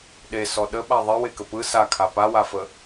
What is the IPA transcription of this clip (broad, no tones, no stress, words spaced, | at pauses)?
ɗesɔ ɗəɓa ðˤewekə pɯ sakʰa pawafə